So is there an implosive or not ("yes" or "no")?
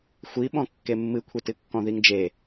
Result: yes